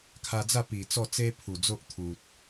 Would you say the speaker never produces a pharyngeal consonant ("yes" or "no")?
yes